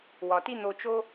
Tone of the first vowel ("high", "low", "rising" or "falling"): low